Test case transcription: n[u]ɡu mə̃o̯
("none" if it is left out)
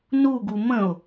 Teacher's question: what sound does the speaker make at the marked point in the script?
u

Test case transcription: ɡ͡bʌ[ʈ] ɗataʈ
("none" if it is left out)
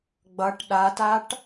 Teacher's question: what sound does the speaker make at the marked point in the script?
ʈ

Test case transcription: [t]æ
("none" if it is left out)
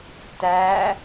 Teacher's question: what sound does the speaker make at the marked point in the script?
t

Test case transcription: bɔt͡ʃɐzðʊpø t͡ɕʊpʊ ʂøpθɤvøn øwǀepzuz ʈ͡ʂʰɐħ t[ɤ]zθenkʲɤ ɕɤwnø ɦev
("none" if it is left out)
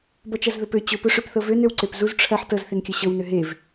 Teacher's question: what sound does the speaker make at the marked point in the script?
ɤ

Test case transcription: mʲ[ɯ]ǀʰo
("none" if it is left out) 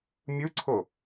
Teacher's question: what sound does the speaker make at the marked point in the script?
ɯ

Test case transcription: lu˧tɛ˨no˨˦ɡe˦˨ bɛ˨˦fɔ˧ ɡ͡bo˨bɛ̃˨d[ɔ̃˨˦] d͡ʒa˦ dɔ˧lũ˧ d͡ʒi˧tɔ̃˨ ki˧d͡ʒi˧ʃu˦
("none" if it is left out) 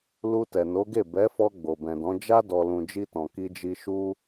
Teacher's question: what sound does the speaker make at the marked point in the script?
ɔ̃˨˦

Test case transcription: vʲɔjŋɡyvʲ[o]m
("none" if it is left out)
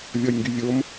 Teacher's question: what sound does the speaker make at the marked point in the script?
o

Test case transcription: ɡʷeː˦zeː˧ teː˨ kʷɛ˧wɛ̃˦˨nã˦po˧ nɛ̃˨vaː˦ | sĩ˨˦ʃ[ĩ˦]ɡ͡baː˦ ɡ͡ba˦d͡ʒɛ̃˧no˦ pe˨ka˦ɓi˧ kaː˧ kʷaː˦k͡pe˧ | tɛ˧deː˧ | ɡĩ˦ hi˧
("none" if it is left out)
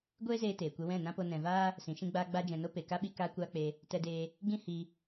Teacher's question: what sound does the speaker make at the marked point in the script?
ĩ˦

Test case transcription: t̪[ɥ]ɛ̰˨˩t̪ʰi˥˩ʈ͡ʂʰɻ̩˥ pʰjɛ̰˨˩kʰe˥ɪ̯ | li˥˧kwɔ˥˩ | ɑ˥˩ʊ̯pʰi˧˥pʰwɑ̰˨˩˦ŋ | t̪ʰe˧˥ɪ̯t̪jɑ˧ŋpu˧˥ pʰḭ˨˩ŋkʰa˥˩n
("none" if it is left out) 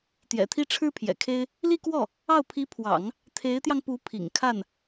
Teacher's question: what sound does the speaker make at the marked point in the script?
j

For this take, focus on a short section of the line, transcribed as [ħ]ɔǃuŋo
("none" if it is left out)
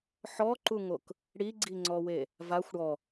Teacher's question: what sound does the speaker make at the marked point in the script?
ħ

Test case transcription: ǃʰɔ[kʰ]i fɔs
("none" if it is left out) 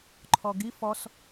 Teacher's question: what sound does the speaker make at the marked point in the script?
ɡ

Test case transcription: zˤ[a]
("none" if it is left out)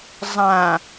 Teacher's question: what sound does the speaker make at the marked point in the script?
ã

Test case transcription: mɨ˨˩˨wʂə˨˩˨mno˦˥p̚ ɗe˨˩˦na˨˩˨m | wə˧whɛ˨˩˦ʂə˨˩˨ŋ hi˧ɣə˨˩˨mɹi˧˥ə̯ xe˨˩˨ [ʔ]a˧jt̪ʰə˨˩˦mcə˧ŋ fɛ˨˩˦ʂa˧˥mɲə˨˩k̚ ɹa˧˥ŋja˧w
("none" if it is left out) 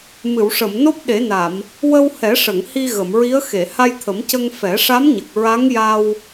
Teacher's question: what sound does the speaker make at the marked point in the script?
h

